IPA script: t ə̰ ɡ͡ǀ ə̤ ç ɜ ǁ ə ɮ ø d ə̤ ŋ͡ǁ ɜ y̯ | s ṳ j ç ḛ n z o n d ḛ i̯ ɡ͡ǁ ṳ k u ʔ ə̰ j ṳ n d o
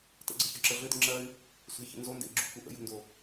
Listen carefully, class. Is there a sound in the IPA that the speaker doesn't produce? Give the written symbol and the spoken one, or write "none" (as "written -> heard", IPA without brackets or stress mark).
none